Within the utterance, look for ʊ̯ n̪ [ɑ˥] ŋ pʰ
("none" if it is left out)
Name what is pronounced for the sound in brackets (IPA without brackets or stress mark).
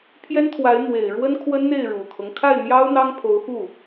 ɑ˥